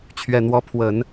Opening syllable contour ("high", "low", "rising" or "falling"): low